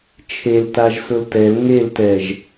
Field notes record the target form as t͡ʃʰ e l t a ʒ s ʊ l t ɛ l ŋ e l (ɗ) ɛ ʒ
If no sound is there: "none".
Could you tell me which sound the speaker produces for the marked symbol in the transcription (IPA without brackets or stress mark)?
t